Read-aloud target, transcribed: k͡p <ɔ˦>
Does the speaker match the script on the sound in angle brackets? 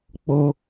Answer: no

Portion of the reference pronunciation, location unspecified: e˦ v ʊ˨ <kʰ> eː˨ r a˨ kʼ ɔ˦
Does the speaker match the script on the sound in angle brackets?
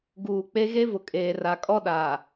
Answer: no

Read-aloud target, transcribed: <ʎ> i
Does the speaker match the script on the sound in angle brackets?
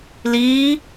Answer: no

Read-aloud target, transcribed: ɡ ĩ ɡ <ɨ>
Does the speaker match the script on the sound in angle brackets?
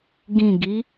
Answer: no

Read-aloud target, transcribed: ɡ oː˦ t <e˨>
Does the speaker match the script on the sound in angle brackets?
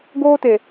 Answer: yes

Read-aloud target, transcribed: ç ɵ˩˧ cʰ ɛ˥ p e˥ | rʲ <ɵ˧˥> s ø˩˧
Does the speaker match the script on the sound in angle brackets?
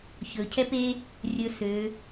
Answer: no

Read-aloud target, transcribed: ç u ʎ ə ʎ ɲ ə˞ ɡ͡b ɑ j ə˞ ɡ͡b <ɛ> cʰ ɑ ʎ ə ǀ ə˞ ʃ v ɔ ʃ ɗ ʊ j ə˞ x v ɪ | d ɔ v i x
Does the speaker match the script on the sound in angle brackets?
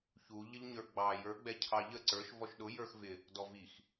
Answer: yes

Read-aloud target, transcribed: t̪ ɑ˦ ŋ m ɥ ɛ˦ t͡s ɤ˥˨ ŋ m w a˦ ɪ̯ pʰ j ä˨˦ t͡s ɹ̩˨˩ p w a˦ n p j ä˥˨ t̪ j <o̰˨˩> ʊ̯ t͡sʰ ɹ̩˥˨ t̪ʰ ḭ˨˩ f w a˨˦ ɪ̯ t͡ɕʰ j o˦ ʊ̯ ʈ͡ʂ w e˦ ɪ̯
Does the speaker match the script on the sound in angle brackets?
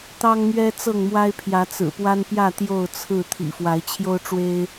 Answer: no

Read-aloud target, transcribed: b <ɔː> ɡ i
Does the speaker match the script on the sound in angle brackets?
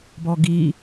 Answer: no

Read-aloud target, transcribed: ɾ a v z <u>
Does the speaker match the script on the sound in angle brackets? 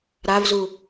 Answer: yes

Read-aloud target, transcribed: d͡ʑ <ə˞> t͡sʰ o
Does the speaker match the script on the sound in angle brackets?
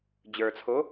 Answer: yes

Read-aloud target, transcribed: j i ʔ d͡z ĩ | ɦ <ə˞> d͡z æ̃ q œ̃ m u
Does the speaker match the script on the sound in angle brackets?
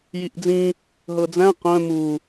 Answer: no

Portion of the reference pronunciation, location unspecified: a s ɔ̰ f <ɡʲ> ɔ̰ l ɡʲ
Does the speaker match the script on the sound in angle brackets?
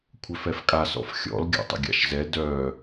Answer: no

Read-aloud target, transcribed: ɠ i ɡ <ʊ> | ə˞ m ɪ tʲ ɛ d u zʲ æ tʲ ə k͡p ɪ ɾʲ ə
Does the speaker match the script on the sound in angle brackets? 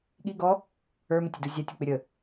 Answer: no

